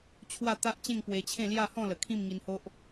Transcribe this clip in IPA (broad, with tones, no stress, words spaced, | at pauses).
t͡ɕʰwa˥˧t̪a˦ʔt͡ɕẽ˥˧ŋ pwe˧t͡ɕʰẽ˥˧ lja˥˧hɔ̃˥˧lə˨˩ kʰĩ˥˧mŋi˧nho˦ʔ